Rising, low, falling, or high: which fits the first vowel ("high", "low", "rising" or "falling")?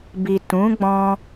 low